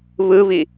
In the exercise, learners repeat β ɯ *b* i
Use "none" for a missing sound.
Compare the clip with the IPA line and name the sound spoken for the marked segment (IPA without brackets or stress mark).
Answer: β